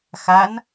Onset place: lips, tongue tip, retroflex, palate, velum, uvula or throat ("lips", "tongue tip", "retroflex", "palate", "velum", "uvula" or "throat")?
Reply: velum